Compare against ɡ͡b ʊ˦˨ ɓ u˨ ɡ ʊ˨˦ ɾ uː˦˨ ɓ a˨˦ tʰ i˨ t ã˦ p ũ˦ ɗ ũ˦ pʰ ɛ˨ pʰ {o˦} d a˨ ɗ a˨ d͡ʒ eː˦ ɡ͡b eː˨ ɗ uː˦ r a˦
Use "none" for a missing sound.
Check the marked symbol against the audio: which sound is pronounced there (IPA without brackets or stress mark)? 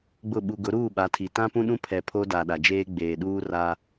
o˦